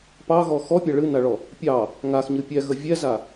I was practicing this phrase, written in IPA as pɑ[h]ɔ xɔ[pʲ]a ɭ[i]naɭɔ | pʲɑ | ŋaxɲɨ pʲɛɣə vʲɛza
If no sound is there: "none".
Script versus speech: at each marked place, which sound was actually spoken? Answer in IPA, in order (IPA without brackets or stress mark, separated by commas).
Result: ɣ, pʲ, ɨ